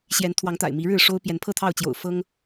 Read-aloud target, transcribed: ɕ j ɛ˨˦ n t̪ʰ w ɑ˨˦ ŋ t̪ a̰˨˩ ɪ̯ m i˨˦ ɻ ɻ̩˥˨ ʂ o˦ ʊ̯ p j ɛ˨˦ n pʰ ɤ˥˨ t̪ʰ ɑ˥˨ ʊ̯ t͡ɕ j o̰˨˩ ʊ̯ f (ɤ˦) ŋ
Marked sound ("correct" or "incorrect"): correct